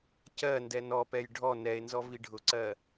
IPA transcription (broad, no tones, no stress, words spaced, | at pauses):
cɜndɛ nɔpɛj ɖʱɔ nɛe̯nzɔ viɖʱʊǀɜ